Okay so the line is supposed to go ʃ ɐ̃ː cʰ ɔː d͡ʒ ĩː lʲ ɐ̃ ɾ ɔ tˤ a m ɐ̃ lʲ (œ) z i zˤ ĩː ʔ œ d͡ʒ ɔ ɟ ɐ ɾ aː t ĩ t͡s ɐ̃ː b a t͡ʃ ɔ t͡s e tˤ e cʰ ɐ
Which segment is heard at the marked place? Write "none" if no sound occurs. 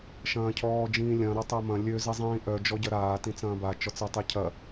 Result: ø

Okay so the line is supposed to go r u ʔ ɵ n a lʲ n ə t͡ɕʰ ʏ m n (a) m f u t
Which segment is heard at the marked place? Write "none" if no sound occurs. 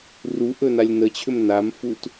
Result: a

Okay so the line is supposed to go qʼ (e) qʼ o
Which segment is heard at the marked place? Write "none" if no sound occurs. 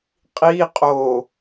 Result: i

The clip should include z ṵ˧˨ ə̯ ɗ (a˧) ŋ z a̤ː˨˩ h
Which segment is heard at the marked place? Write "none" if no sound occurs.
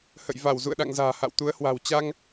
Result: a̰˧˨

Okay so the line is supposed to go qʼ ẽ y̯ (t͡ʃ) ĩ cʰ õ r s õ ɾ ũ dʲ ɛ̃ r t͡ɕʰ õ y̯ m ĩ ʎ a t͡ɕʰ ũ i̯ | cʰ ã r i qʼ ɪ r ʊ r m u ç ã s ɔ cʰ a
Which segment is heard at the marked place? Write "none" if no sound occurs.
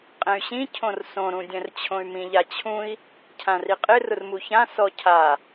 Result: ɕ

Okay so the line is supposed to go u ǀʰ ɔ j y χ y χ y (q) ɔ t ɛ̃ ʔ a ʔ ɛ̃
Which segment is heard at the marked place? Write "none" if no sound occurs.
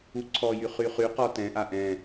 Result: q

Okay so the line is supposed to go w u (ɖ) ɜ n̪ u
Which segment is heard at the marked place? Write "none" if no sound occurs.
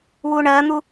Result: ɳ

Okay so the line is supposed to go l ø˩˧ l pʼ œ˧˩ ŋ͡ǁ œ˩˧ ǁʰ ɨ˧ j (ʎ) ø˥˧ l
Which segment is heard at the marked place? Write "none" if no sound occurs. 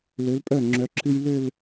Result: l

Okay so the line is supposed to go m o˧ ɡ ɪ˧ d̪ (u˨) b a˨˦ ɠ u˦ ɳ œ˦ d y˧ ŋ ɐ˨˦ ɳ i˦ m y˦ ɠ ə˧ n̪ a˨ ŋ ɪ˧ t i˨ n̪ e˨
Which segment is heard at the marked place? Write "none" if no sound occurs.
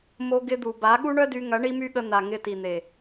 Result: u˨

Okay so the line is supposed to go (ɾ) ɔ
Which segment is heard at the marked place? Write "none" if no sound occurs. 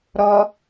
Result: ɾ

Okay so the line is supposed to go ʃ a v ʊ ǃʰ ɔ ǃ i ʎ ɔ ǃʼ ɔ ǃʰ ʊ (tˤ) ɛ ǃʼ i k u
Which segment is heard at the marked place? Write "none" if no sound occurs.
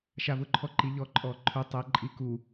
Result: tˤ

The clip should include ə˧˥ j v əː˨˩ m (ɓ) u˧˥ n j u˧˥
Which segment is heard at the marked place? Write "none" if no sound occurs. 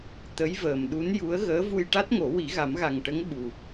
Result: ɗ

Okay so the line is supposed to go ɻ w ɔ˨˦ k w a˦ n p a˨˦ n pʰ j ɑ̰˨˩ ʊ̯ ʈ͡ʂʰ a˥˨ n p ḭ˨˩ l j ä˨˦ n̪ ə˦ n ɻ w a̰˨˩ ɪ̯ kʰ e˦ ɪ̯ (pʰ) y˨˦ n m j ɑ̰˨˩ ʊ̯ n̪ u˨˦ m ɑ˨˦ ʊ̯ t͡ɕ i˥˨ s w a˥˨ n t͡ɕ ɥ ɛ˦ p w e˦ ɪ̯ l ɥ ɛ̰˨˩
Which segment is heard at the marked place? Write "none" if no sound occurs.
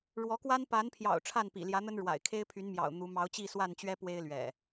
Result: pʰ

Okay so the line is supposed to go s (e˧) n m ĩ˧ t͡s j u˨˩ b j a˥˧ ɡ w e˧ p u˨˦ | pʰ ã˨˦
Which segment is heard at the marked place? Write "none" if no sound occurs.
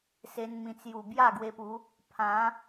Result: e˦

